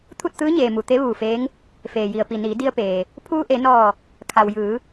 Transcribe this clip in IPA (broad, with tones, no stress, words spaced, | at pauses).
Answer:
t̪ʰu˥˨t̚t̪ɯː˧˥ɲeː˩ mu˩t̪e˧˥ʋuː˧˩feː˧˥ŋ | feː˩ji˩ə̯pi˩niː˩˧ di˧ə̯peː˩ | pʰuː˧ʔe˩˧nɔː˧˩ | kʰa˩wjɯː˩˧